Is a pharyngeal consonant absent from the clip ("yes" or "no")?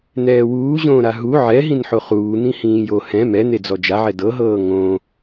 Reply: no